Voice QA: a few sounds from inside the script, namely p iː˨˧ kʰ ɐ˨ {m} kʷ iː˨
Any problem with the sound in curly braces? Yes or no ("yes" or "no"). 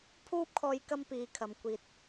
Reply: no